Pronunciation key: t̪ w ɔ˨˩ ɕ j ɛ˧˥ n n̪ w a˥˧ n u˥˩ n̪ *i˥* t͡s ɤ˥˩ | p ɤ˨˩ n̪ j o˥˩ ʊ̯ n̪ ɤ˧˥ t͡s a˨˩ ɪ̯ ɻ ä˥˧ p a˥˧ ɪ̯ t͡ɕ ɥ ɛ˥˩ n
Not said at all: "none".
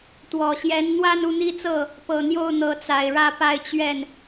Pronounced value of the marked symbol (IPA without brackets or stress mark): i˥